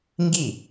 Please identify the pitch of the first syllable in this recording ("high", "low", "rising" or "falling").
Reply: falling